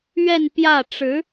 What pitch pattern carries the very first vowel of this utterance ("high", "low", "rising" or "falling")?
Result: falling